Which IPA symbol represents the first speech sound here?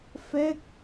f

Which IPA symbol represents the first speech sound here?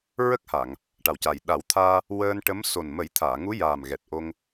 ɹ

